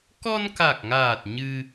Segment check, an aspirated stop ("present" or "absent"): absent